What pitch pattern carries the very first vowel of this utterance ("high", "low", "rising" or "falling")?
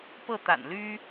falling